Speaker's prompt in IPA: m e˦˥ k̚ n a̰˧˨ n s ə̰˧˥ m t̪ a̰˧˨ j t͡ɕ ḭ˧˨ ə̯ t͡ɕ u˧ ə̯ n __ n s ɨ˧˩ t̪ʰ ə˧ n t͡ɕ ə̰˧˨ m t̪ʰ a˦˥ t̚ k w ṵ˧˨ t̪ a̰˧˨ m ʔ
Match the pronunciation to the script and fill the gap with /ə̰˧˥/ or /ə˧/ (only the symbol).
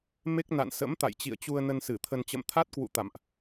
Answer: ə˧